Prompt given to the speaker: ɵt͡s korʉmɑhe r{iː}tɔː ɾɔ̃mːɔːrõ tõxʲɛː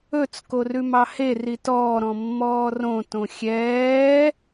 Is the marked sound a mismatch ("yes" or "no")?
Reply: yes